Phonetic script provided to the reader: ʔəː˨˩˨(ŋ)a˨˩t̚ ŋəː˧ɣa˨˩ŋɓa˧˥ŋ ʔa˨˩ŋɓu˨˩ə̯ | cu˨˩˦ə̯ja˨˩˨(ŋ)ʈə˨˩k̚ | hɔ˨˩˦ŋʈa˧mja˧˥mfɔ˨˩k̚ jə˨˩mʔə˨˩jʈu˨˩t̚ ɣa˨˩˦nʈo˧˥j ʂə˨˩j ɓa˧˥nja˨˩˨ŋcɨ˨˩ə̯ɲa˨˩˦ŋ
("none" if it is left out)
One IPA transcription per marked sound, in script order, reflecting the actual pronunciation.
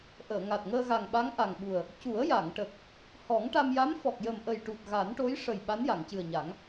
ŋ, ŋ

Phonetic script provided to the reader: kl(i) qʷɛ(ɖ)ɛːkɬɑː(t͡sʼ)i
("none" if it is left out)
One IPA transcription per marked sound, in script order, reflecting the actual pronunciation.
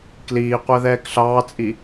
iː, ð, t͡sʼ

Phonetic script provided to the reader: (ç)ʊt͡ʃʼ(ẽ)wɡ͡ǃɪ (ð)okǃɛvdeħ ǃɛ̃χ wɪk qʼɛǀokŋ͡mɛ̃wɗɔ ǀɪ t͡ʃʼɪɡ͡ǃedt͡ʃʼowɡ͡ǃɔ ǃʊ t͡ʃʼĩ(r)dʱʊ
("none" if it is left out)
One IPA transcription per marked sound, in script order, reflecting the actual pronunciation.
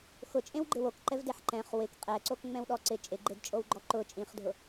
x, ẽ, w, χ

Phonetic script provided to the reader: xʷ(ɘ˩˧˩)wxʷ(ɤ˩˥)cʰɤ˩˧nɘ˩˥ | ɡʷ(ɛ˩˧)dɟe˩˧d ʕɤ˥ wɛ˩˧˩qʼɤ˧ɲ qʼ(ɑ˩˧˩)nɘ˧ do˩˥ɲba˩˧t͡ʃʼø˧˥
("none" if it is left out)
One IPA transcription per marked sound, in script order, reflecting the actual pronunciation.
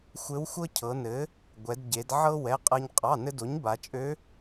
ɘ˧˥, ɤ˥, ɛ˩˧, ɑ˩˧˩

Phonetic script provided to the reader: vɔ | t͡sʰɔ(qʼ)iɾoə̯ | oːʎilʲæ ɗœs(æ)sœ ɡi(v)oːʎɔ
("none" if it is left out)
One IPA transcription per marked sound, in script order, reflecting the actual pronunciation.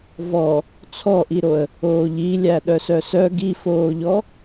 ʔ, œ, f

